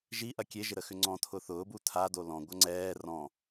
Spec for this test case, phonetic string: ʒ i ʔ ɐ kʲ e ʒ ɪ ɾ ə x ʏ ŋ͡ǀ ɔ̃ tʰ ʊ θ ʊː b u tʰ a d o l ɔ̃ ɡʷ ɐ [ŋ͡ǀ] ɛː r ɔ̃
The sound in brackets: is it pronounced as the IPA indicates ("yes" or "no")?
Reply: yes